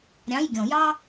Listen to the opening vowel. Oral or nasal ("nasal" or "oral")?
nasal